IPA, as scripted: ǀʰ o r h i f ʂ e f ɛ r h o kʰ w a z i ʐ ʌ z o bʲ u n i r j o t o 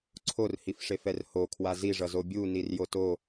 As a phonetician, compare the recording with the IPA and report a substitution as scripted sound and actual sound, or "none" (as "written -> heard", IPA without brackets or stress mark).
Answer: none